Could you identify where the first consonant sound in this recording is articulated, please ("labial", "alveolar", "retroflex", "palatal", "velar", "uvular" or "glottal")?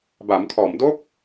labial